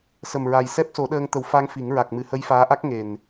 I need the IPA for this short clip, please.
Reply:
sə˨˩mɹa˨˩j sɛ˦˥p̚so˨˩˦ɗəː˧ŋ t̪ə˨˩˦w fa˧ŋ fi˨˩˦ŋ ɹa˨˩k̚mɨ˨˩˨hə˧˥j faː˧˥ ʔa˦˥k̚ŋe˨˩n

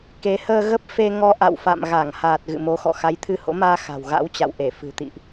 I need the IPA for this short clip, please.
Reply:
ke˨˦həː˧ ɣə˦˥p̚fe˧ŋɔ˧ ʔa̰˧˨wfa̰˧˨mɣa˧˩ŋhaː˨˩t̚ ɣɨ̰˧˨mo˨˦xɔ̰˧˨ xa˨˦jt̪ʰɨ˧ho̰˧˥maː˧ xa̤˨˩wɣa̰˧˥wt͡ɕa̰˧˨w ʔe˧˩fɨ̤˨˩t̪ḭ˧˨ʔ

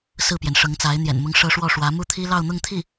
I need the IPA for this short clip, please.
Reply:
sɹ̩˥˩pjɛ˩nʂɤ˧˥ŋt͡sa˧˥ɪ̯ n̪jɛ̰˨˩nmʊ˥ŋʂɤ˥ ʂwɔ˥˩ʂwä˧˥ mu˥˩t̪ʰi˥lɑ˥˧ʊ̯ n̪ʊ˥˧ŋt̪ʰi˥˩

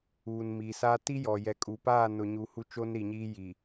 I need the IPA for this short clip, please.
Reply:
uː˨nmi˨sa˦ ti˦jɔ˨ jɛ˨kʼu˨paː˦˨ nʊ˨ɲu˨ hu˦t͡ʃo˦nɾi˨ɲiː˦ ji˨

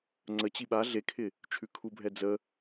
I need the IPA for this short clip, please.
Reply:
ŋ͡ǀə t͡ɕiɓa ɮekʰɪ | t͡ʃʰʉkʰubʱɛd͡zə

